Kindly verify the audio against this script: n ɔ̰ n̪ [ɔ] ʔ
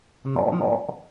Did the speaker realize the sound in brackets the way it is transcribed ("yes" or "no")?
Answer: no